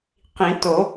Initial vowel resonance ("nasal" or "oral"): nasal